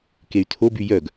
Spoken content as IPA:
key̯tʰoby jœɡ

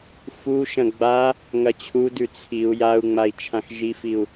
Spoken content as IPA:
fuʃɐ̃ ɡ͡ba | ŋɐt͡ɕʰudʉ t͡sʰiu̯ jau̯ŋ͡mai̯ t͡ʃʰãxʒifiu̯

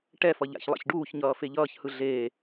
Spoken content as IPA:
ʈɛfʌ ʎa̰çlˠa̰çɖuːçɲʌː feʎʌːçhɯ ɮeː

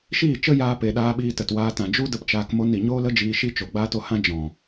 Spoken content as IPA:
ʃiː˦˨t͡ʃə˦jaː˧pe˨ ɗaː˧ɓiː˧tə˨twaː˧ tã˨d͡ʒu˦ də˦pt͡ʃaː˧k mo˧ni˨ɲoː˦lə˦ d͡ʒiː˧ʃi˦ t͡ʃo˨ɡ͡baː˦t o˧hã˦ d͡ʒɔ̃˨

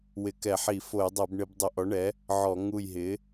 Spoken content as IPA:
wɪ˧˩˧kɛ˧˩˧ħi˧˩˧ fo˧˩˧jdˤɛ˧˩˧bɳɪ˧˩˧b dˤɪ˧˩˧ʔɔ˩˥ɳɛ˩˥ | ʕɔ˧˩˧ŋu˧˩jɦɪ˩˥

